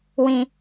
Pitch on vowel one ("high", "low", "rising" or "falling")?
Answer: high